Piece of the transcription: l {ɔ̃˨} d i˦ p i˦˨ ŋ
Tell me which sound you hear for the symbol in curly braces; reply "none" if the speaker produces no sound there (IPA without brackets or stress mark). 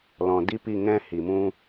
ɔ̃˨